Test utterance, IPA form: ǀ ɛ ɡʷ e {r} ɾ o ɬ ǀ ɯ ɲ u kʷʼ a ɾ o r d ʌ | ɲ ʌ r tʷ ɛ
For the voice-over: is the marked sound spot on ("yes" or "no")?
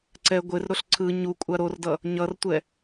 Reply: yes